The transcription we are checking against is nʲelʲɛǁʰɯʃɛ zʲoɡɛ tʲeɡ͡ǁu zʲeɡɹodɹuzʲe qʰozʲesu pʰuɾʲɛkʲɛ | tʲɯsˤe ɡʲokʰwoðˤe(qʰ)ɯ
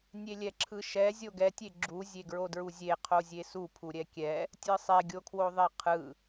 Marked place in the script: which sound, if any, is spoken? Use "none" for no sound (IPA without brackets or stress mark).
qʰ